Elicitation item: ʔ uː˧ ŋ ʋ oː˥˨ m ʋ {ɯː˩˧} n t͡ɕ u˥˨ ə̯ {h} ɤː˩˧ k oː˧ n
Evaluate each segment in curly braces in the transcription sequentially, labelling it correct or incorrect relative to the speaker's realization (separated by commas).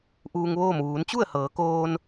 incorrect, correct